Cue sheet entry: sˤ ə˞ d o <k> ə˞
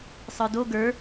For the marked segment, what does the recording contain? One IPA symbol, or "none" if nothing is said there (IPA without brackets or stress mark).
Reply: ɡ